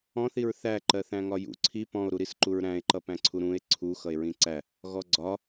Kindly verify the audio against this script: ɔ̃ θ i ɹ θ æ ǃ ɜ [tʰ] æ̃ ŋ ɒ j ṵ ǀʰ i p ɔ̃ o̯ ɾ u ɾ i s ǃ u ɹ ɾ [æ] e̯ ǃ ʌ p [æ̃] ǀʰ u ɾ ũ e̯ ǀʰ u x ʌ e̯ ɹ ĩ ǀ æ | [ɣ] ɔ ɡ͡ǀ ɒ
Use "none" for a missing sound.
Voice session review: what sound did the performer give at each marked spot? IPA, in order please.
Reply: θ, æ̃, æ̃, ɣ

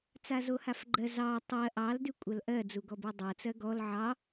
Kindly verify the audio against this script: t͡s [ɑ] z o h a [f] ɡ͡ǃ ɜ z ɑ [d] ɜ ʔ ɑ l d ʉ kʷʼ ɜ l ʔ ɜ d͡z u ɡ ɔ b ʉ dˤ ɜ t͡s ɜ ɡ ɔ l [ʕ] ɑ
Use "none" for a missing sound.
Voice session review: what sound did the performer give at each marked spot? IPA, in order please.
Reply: a, f, tˤ, ʕ

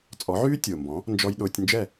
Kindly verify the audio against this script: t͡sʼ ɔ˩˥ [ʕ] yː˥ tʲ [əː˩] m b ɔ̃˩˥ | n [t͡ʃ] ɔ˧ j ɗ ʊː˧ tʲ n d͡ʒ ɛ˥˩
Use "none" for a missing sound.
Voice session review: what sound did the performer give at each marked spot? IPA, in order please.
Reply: ʕ, ʊː˩, d͡ʒ

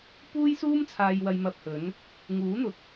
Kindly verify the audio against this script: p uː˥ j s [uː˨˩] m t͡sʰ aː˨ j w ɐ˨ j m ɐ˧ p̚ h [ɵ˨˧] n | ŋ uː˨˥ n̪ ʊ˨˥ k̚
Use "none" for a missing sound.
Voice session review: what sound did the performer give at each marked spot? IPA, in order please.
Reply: uː˥, ɵ˨˧

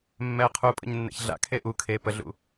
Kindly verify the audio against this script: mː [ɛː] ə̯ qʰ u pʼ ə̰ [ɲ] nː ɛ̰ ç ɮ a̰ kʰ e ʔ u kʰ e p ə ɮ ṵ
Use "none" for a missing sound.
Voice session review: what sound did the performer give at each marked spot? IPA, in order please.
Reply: ɛ, ɲ

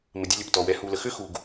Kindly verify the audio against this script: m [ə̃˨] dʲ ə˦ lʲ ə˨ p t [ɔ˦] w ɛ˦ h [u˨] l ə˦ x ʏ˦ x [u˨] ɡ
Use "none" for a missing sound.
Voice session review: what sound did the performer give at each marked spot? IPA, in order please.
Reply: ə˨, ɔ˨, u˦, u˨

